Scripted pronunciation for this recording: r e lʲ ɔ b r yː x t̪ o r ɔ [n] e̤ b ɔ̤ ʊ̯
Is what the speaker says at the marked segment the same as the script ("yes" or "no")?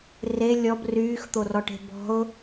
no